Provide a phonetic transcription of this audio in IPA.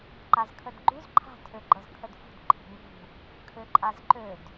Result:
ǃ a z kʰ ə d ɡ͡ǃ ʉ z ǃʰ a̤ tʰ ø ɡ͡ǃ ɤ z kʰ ə d f ṳ d ǃʰ i̤ ŋ ṳ | kʰ ø ǃʼ a z ǃ ø d

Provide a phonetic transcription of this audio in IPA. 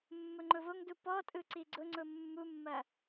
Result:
mː ʊ ŋ͡ǃ ʊ v o ŋ d u p ɔ tʼ ɯ ǀ i ɡ͡ǀ ʊ ŋ͡ǀ ʊ mː u mː ɐ

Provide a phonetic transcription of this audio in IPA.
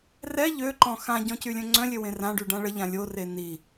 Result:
r ɛ ʎ ø ǃ ɔ̃ x ã ɟ ɔ̃ c y lʲ œ̃ ŋ͡ǀ œ̃ lʲ ø w ẽ r ã ɖ y ɖ ã ɭ ə ʎ ã lʲ o r e n i

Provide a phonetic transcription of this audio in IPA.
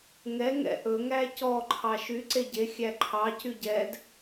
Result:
ŋ ɛ ŋ ɛ̰ ʔ ɵ ŋ æ c ɔ ǃʰ ɑ ʃ y ǀ e ɟ e xʲ æ ǃʰ ɑ c y ɟ ɛ d

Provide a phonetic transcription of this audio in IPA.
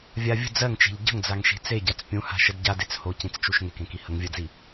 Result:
vʲ a vʲ ə̤ d͡z ɜ ŋ t͡ʃ e̤ ʎ ɟ ə̤ ŋ d͡z a ŋ ʃ i̤ t͡s e ɟ a t͡s pʲ ũ h a̤ ʃ ə d ɟ a d e t͡s h o c ĩ t͡s t͡ʃ u ʃ ŋ e k ẽ k i h ə ŋ vʲ ɜ d͡z i

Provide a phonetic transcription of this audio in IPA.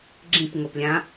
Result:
ɡ͡ǁ ĩ p ŋ o p lʲ ã

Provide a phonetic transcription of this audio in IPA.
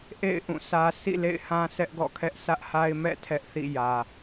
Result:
ʔ ḛ˦˨ ɪ̯ ʔ ũ˦˨ sʰ ä˦ sʰ ḭ˦˨ l ḛ˦˨ ɪ̯ h ã˦ sʰ ɛ˦ ʔ ɡ ɔ̰˦˨ kʰ ɛ˦ ʔ s ä˦ ʔ h a˦ ɪ̯ m ɛ̰˦˨ tʰ ɛ˦ ʔ θ ḭ˦˨ j ä˨

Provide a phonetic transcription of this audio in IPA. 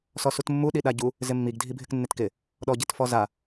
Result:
s ɔ s u t mː u ɗ i ɗ a ɟ u | z ɪ mː i ɡ dʱ i bʱ ɪ k nː ɪ t k ɪ | ɗ ɔ ɟ e t f ɔ z a

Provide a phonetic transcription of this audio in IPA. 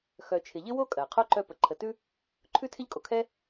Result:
x œ˨ t͡ʃʰ ɪ˨ ʎ ɪ˥ w o˥ kʼ ɜ˩ qʰ o˦ ǃ œ˦ p ə˨ ǃʰ ə˨ t ʉ˥ | ǃʰ ʉ˦ tʰ ɪ˦ ʎ kʼ o˩ kʰ ɛ˦

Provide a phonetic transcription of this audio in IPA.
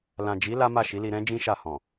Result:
l ã˨ d͡ʒ i˨˦ l a˦ m a˦˨ ʃ i˨˦ l i˧ ɾ ɛ̃˦ d͡ʒ ĩ˦ ʃ a˦˨ h ɔ̃˨

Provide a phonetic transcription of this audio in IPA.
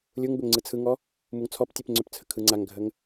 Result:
lʲ u ŋ b ʏ ŋ ŋ͡ǀ ɯ t͡sʰ ɯ ŋ ɔ | m u ŋ t͡sʰ ɔ p tʲ ɯ p ŋ͡ǀ ʏ p t͡sʰ ə kʰ ɯ ŋ͡ǀ a ŋ ɡʱ ə ŋ

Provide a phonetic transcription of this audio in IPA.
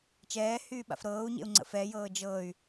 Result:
t͡ʃ ɛː h yː ɓ a̰ f ɾ ɤː u̯ ɲ ḛ u̯ ŋ͡ǀ ə̰ f ɛ j ɤː d͡ʒ ɤ y̯

